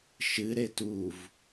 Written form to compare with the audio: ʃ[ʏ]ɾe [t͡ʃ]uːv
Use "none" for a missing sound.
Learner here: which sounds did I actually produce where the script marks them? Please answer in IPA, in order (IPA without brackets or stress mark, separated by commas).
ɨ, t